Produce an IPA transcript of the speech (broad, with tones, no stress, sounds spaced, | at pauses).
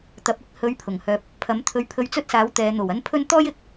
t̪ ɐ˨˥ p̚ ɪ˧ k̚ h ɵ˧ ɥ pʰ ʊ˨˩ ŋ h œː˧ p̚ | pʰ ɐ˨˥ m t̪ʰ ɵ˧ ɥ pʰ ɵ˧ ɥ t͡s ɵ˥ t̚ s aː˨˥ w t̪ ɛː˨˧ n̪ o˨˩ w ɐ˥ n pʰ ɵ˥ n t̪ ɔː˥ j ɪ˨˥ k̚